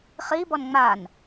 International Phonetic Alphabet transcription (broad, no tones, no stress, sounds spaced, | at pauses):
χ i b ɔ n ŋ͡m a n